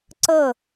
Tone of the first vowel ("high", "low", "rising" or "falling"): falling